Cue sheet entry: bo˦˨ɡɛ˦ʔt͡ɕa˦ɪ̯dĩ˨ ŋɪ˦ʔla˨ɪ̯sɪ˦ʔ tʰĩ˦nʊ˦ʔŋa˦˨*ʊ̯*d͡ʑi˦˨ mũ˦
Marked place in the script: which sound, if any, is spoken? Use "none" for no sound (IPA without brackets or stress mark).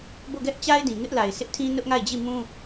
ɪ̯